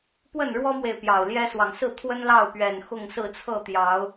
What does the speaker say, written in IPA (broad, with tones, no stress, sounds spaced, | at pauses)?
p w ə˥˨ n ɻ w ɔ˦ m w e˨ ɪ̯ p j ɑ˨˩ ʊ̯ l j ɛ˦ s w ɑ˨ ŋ s ɹ̩˥˨ t̪ʰ w ə˦ n l ɑ˥˨ ʊ̯ p ɥ ɛ˨˩ n x ʊ˥˨ ŋ s ɹ̩˥˨ t͡sʰ ɤ˥˨ t̪ j ɑ˨˦ ʊ̯